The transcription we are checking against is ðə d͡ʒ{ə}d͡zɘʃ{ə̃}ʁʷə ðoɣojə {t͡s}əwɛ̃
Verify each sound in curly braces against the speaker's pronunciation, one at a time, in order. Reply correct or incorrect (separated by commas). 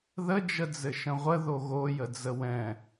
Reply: correct, correct, incorrect